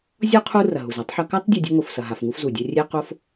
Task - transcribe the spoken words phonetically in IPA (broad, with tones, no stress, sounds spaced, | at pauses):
zʲ ɔ˥ qʰ u˦ r ɐ˩ ɦ u˩ z a˦ tˤ ħ ɐ˦ k a˦ tˤ dʲ u˨ dʲ o˦ ŋ o˩ f s ɐ˩ ɦ a˨ f ŋ u˦ f z u˩ dʲ ɛ˦ rʲ e˦ q o˦ f